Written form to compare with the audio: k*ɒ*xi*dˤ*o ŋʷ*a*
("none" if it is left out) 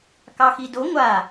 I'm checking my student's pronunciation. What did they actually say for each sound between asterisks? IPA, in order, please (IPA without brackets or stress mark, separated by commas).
ɑ, d, a